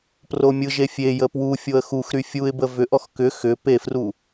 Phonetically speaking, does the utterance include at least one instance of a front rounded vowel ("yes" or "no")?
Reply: yes